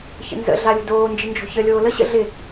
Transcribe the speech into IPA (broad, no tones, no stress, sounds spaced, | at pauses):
ç ə̰ n z ə̰ ɮ a lʲ ə̤ d oː n d͡ʒ ɪ n d͡ʒ ɔ̤ ç ə lʲ oː l ə ɕ ə̰ ɮ ɪ